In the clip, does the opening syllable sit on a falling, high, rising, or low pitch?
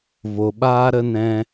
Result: low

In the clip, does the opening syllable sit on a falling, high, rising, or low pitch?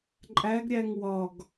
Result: rising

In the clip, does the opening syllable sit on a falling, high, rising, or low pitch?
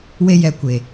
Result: high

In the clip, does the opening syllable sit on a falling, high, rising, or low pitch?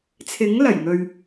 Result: rising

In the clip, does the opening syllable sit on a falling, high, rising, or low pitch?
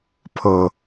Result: low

